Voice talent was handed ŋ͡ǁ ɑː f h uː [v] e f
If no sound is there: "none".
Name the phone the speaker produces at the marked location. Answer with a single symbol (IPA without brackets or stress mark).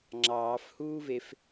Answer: v